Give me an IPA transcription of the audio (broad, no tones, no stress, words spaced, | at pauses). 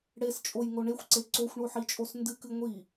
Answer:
ɽest͡ʃʼojŋo ɳexʷǀe ǀoxʷɳoħit͡ʃʼos ndɨkɨ ŋʷi